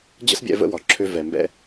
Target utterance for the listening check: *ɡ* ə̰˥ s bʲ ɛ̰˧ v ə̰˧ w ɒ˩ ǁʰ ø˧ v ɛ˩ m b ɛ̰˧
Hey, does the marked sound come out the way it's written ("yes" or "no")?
no